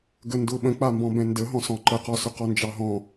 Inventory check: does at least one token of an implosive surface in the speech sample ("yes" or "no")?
yes